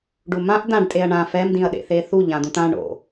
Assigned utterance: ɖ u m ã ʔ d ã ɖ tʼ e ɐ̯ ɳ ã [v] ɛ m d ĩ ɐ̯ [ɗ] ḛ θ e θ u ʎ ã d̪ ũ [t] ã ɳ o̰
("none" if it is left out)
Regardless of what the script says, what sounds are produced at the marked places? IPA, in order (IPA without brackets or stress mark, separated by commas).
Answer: f, ɗ, t